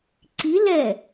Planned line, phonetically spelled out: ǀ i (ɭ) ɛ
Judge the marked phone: incorrect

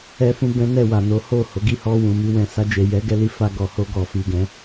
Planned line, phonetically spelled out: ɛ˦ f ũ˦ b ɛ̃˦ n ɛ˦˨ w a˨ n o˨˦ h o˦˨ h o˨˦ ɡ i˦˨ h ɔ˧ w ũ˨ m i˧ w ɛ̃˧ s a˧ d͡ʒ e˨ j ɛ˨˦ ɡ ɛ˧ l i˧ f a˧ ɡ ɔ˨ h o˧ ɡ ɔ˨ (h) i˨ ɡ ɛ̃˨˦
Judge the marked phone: incorrect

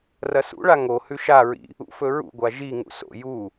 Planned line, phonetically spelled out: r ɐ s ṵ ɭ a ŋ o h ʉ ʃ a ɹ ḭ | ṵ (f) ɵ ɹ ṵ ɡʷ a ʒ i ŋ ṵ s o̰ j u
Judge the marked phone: correct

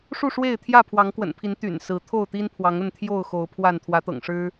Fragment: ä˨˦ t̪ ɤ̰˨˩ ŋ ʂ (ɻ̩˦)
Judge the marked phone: correct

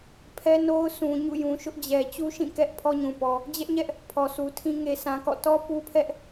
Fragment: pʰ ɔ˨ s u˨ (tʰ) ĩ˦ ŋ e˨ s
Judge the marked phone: correct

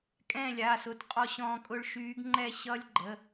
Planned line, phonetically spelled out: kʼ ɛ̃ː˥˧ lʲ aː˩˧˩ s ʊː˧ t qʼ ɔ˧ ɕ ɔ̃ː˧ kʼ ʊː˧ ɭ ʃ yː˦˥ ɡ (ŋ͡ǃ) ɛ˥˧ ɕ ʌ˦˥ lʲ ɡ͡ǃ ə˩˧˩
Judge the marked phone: correct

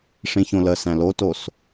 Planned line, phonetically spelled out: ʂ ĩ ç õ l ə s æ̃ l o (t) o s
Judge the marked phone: correct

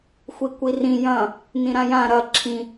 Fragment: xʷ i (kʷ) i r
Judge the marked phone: correct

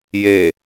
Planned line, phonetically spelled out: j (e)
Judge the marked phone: correct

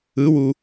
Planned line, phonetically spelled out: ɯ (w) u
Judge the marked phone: correct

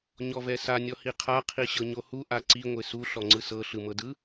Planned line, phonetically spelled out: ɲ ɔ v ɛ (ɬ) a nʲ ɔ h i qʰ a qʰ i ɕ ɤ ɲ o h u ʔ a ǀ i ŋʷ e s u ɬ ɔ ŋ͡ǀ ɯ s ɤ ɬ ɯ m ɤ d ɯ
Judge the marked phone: incorrect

